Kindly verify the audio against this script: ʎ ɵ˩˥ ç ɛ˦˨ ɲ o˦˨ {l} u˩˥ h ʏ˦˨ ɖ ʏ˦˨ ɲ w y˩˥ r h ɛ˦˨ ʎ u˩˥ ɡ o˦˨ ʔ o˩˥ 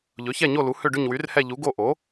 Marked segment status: correct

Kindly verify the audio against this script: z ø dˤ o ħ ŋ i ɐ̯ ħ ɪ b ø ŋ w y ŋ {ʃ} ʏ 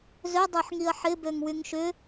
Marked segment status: correct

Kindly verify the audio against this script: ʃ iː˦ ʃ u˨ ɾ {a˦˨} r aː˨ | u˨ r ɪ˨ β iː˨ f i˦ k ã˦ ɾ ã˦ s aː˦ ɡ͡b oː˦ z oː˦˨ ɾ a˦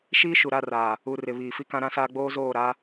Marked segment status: correct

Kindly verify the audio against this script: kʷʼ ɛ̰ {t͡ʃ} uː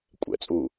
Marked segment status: incorrect: t͡sʼ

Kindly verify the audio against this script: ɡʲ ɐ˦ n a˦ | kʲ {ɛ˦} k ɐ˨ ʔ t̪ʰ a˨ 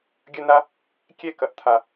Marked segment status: correct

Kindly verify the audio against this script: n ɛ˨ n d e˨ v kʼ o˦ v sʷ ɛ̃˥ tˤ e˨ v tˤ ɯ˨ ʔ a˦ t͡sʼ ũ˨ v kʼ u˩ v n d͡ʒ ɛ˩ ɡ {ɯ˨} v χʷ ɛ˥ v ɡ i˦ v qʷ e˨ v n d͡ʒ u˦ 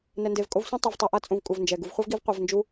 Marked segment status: incorrect: u˨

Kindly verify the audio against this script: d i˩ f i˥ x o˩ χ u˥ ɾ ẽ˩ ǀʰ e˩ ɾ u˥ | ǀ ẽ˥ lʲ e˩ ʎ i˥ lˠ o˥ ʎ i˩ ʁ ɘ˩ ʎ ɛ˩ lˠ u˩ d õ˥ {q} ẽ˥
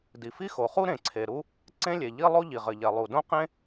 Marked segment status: correct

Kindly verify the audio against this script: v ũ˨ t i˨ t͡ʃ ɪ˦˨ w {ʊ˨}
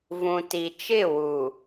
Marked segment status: incorrect: u˨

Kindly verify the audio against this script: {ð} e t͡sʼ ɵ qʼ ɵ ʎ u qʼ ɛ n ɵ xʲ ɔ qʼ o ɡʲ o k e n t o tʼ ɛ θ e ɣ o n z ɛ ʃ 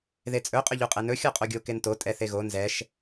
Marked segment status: correct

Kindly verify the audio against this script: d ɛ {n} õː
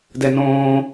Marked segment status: correct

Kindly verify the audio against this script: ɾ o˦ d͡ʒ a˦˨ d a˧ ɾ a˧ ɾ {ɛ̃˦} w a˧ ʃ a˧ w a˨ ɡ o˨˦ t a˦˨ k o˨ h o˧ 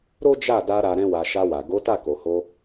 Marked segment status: correct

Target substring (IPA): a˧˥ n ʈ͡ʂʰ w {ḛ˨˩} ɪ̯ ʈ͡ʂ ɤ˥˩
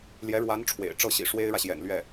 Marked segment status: correct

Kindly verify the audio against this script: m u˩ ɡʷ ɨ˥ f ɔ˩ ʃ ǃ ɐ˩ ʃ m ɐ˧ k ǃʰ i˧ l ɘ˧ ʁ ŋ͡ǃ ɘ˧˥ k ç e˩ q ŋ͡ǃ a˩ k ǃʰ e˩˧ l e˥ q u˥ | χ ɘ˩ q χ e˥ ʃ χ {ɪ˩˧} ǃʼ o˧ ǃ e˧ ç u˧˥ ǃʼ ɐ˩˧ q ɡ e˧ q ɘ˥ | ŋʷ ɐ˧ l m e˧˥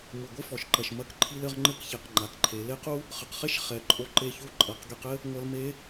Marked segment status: incorrect: ɛ˩˧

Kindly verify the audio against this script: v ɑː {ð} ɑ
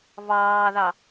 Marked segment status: correct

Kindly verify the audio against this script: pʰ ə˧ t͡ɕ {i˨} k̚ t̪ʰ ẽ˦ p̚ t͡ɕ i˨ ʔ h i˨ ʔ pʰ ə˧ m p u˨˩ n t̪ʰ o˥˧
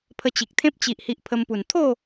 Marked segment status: correct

